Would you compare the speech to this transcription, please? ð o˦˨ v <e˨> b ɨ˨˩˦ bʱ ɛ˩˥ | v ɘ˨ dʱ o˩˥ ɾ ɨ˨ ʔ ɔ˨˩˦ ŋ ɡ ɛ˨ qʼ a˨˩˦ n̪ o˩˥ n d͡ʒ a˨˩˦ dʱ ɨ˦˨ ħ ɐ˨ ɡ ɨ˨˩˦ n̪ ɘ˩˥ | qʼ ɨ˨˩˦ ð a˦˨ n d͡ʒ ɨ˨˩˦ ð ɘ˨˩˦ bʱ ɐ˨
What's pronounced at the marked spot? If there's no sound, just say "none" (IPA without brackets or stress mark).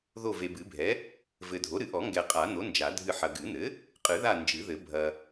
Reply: e˨